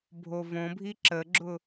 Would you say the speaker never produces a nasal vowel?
no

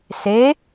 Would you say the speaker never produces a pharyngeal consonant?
yes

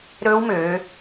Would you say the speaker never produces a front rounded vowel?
no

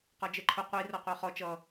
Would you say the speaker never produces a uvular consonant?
no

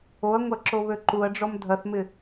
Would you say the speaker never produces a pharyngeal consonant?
yes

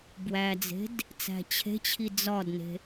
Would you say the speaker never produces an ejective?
yes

